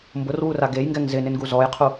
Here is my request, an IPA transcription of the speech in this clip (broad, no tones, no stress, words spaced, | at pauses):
mbʊrwura ɡejŋɡɛŋ zɪnɪnɡu zɔjqʰu